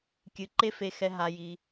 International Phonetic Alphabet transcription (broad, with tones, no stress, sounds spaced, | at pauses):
kʲ ɨ˨˦ ǃ e˦ f e˧ x ɛ˧ ɦ a˧ j i˧